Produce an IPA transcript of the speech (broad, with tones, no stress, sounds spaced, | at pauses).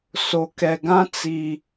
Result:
s o˨ k ɛ˨ ɡ ã˦ t͡s i˨